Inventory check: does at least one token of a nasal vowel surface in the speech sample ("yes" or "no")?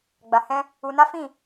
yes